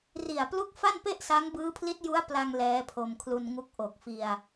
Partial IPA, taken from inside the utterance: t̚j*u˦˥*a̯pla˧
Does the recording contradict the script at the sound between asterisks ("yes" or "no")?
no